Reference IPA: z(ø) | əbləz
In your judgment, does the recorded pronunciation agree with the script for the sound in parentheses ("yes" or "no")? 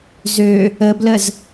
yes